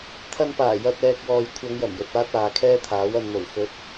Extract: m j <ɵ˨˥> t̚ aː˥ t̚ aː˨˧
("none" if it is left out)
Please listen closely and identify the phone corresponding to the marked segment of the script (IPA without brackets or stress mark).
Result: ɵ˨